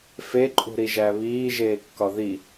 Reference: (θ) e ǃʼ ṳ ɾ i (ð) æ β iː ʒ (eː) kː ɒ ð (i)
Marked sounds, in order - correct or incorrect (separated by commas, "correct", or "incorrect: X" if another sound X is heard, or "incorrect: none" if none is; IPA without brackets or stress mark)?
incorrect: f, incorrect: ʒ, correct, correct